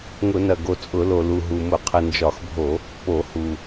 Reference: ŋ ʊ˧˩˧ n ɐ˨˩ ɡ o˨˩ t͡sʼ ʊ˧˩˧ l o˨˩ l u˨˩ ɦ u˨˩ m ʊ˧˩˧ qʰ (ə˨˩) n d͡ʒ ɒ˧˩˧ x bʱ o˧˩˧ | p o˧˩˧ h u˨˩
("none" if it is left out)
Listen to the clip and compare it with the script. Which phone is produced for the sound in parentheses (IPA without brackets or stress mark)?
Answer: ə˨˩